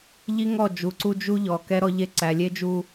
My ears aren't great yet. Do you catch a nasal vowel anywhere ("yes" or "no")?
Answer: no